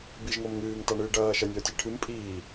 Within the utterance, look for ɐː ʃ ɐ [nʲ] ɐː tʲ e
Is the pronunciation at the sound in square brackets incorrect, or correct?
correct